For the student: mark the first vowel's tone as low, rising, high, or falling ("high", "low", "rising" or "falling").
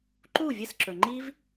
falling